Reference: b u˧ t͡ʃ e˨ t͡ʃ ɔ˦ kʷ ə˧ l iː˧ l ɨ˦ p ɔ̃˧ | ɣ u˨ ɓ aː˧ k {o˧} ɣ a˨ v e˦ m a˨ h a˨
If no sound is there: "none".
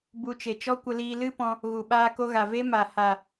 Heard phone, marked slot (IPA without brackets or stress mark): o˧